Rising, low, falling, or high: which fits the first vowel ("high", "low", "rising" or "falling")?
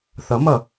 rising